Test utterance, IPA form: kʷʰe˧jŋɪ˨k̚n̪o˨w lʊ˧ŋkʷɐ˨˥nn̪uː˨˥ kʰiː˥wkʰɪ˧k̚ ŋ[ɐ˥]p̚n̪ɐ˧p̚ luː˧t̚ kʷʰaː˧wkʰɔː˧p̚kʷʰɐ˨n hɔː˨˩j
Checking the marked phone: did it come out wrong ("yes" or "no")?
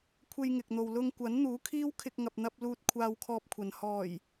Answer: yes